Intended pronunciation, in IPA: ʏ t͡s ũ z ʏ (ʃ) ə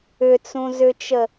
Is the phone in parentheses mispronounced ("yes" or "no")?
yes